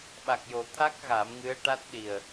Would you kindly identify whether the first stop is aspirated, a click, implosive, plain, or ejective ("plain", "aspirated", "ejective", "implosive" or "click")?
implosive